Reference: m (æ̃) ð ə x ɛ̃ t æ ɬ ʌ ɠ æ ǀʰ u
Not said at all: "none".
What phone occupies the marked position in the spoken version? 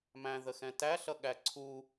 æ̃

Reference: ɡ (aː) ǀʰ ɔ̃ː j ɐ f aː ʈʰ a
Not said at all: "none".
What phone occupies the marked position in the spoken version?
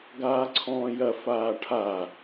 aː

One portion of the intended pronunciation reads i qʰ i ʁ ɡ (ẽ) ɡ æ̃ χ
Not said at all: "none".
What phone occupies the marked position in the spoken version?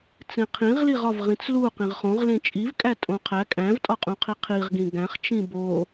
ĩ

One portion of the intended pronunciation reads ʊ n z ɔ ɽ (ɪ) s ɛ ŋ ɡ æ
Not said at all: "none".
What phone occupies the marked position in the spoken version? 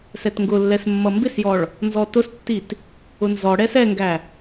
ɛ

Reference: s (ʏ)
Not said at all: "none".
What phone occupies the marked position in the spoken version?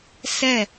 ɛ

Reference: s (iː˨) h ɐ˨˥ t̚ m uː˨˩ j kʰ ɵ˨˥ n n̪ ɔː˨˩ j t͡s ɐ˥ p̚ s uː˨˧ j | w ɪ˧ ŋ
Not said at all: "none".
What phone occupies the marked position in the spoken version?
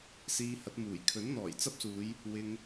iː˧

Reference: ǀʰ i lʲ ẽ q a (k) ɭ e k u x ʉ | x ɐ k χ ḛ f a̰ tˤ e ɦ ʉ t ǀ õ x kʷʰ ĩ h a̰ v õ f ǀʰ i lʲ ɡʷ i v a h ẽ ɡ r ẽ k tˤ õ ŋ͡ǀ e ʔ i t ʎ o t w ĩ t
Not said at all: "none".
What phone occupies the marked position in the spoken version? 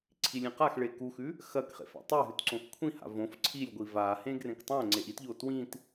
x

